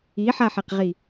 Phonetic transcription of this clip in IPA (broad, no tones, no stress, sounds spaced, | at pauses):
i ħ a ħ e q ʁ i